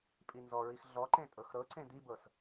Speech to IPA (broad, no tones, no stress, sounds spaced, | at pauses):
pʼ i n z ɔ ɹ i x ɮ ɔ ǃ ẽ tʼ ɤ x ɾ ɤ ǀ ẽ d̪ i b ɤ s